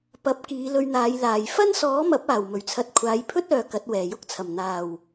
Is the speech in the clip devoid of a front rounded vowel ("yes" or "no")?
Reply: no